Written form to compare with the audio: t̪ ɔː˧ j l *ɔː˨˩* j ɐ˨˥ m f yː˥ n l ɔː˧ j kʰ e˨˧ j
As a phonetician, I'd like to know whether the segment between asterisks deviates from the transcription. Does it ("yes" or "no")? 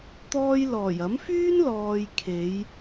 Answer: no